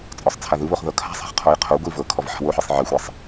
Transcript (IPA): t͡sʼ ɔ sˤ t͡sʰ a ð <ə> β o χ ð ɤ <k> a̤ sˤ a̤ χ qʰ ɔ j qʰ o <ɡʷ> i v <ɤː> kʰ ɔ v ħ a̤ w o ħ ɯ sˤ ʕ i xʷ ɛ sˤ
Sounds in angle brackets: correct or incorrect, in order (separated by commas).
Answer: incorrect, incorrect, correct, incorrect